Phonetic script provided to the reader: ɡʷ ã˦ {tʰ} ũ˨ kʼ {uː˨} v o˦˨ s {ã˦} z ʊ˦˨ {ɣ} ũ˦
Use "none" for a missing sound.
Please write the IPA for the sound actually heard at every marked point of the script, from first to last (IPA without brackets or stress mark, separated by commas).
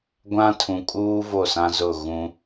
tʰ, uː˦, ã˦, ɣ